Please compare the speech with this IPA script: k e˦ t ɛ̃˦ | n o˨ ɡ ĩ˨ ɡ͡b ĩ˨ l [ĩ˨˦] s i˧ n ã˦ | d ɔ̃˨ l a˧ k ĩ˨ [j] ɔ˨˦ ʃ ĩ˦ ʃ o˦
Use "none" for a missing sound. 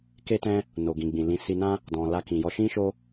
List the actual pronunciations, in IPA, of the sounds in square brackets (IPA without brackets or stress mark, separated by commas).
ĩ˨˦, j